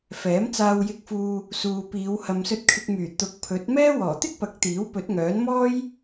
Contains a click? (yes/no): no